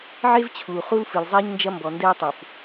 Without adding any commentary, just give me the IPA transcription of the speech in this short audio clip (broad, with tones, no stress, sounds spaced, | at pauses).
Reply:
ʕ e˦ v t͡ɕʰ uː˨ χ u˦ l f ɨ˨ l zˤ ɛː˦ ɲ n d͡ʒ ɐ˦ m b ɔ˨ n d ɛ˦ ʊ̯ tˤ u˨ f